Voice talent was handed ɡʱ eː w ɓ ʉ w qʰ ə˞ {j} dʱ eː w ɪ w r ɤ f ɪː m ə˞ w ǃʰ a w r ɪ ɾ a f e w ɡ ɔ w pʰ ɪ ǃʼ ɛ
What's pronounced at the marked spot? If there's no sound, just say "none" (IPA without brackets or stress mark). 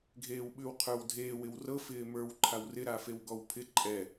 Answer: w